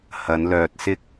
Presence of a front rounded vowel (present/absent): present